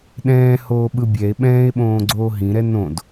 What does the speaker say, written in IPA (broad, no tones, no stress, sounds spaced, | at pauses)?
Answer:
ɗ ɛ̃ː h oː ɓ ɯ bʲ ɛ e̯ ɓ ɛ̃ː e̯ ɓ õː ɡ͡ǀ oː ɦ ĩ ɾ ɛ n õ d